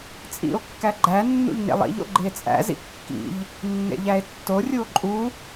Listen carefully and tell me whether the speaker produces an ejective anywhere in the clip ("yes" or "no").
yes